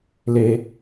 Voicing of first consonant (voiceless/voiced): voiced